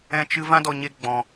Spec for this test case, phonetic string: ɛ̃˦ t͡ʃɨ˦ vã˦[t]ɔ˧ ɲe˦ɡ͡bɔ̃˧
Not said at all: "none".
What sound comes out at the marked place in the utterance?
d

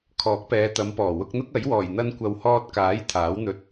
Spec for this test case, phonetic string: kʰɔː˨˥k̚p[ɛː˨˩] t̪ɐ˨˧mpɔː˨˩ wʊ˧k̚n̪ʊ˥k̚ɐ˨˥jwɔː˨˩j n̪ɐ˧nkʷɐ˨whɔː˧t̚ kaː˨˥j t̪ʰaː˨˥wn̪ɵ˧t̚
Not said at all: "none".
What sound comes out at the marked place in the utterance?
ɛː˨˧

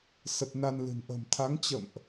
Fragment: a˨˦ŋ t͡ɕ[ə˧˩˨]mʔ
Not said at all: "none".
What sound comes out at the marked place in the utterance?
ə̰˧˨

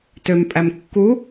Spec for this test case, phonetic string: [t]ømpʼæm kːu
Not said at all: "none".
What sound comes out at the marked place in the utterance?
t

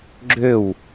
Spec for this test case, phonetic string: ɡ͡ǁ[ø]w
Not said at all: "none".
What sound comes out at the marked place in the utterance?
ø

